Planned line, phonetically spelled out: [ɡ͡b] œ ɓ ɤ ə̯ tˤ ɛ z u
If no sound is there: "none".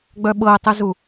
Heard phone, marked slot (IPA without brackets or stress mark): ɡ͡b